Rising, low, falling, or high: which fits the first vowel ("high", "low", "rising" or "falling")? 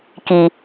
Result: low